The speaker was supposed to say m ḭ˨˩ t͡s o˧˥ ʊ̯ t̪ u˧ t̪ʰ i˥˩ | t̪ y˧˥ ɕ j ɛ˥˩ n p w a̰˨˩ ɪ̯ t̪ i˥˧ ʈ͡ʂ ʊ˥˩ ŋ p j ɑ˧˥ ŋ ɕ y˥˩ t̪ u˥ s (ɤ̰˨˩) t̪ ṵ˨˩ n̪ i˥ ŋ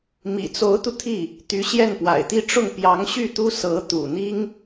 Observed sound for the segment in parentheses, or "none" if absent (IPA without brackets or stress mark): ɤ˧˥